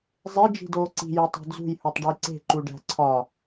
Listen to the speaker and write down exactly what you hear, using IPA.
zˤe d͡ʒi̤doːǀi̤ jotˤe̤d͡zṳj hutˤɖujǀe̤ ǃuɖæ̤ǀʰɒ

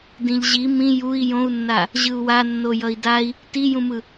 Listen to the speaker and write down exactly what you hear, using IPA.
dĩʎʑi mĩ jui̯ jõu̯nːa | ʑɯu̯wanːo jʌi̯dai̯ | tijũmɯ

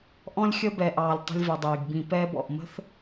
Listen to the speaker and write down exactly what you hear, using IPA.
ʔɔ̃˥lʲxʲə˥bɛ˨ʔɑː˨lʲ tˤə̤˦lʲvɛ˨dˤiː˩ɡ bĩ˨pɛː˦bɔ̰˩ʔ mə̤˥θ

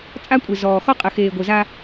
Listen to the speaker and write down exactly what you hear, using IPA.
t͡sʼa˦kʷʼe˨zɔː˨ xɔ˦qʼɘ˨xeː˨ ɡʷɘ˨zaː˦

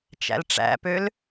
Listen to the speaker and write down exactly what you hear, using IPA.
t͡ʃæ̰lʈ͡ʂæ̰pøl

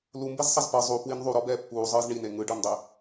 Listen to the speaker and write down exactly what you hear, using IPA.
lumbezsˤaz pɤ zˤupwin ðˤuɾɔbɛː pːuːzˤɯːz ɳine ŋɯɖɤndˤɛ

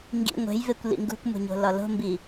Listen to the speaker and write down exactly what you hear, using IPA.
ŋɡḭ ŋʷe̤jvekʷ lḭŋɡṳkʷmṳɲo̤ lɒlo̤mbi

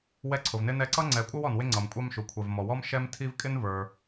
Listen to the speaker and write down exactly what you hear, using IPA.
wɛ˦ǀʰʊ˩vnɪ˥nɛ˦ ǀʌ˥ ŋ͡ǀɛ˨kʷʼʌ˥wɔ˩nwɪ˦ ŋ͡ǀʌ˩mkʷʼɑ˥mʃu˩ kʷʰɛ˩vmɔ˩wɔ˥m ʃɛ˥mtʰi˥v kʼɪ˥nvə˞˩

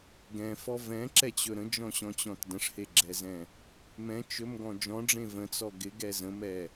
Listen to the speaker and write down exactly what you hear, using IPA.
ɡɛ̃fɔ vɛ̃ǁɛt͡ɕɵ ɾə̃d͡ʒɔ̃ɕɔ̃t͡ɕɔ̃t də̃ʂheɡ͡ǁɛzɛ̃ | mɛ̃ t͡ʃɵmɡɔ̃ d͡ʒɔ̃ɖ͡ʐẽ və̃t͡sɔ ɡɪɡɛ zə̃mɛ

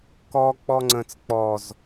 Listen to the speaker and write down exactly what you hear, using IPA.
kɔ k͡pɔŋ͡ǀə̃t͡s k͡pɔz

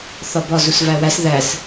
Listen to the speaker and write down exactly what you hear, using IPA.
θɒbɒ zusvæwæs ðæs

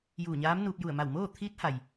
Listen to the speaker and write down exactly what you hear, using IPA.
juː˧˩ɲaː˧˥mnuː˧p̚ ju˧˩ə̯ma˧˩wmoː˥˨ t̪ʰiː˧˥t̚ha˩j

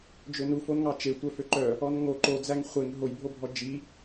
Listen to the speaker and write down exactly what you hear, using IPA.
d͡ʒønufon ŋɑt͡ʃe tʷœføǃœ | ɔnŋo ǃod͡zæŋ χʷeŋ ɦojbʱobʱɔ d͡ʒi

